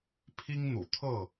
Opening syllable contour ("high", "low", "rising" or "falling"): high